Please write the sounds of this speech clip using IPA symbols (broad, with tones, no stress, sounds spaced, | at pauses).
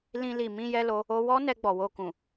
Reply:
l ĩ˧ l i˨ m ĩ˧ j ɛ˧ l o˦ | o˦ w ɔ˦ n ɛ˧ ɡ͡b ɔ˨ w o˧ k ũ˨